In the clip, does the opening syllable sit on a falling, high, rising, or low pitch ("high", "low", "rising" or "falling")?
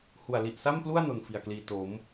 low